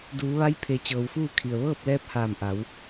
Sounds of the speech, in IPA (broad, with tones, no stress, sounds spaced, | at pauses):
d uː˩˧ ʋ a˧˥ j pʰ e˩˧ t͡ɕ ɤː˩ w f uː˥˨ kʰ i˩ ə̯ ʋ ɤː˥˨ p̚ l ɛː˧˥ p̚ h aː˧˩ m ʔ a˩˧ w